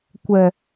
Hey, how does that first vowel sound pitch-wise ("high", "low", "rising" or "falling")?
low